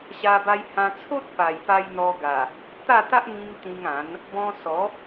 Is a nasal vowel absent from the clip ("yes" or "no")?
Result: no